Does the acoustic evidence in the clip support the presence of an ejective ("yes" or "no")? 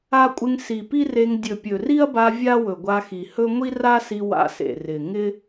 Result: yes